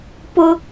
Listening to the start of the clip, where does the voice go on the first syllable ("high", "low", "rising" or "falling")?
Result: high